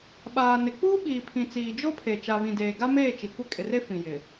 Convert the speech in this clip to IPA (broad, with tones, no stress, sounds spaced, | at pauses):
ɓ aː˨ n ɪ˨ k͡p uː˦ ɓ iː˨ pʰ ĩ˨ t͡s iː˨ d͡ʒ o˦ pʰ e˨ t͡ʃ a˨ β ĩ˨ d eː˨ ɡ a˦ m eː˦˨ t͡ʃ i˨ kʷ ɪ˦ kʼ ɪ˨ r e˦ f ĩ˨ j ɪ˨